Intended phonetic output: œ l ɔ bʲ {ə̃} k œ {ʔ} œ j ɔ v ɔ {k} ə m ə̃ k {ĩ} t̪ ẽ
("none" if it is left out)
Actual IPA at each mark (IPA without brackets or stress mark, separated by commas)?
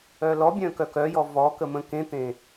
œ̃, k, k, ẽ